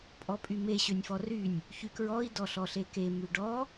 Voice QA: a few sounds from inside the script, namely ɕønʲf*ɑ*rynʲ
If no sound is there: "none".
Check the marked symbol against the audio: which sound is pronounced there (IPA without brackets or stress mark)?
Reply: ɔ